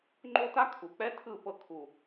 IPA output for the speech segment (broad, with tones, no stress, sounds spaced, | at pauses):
ŋ͡ǃ o˦ t a˦ kʰ u˨ k͡p ɛ˦ tʰ ɯ˦˨ p ɤ˧ kʰ u˨